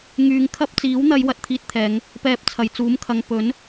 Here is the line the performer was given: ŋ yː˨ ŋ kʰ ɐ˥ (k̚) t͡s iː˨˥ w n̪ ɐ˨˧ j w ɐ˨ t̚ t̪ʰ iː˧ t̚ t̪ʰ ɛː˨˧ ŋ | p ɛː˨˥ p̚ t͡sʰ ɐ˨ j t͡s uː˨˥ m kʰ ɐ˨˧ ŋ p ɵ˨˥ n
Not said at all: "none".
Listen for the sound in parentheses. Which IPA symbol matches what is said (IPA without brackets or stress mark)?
p̚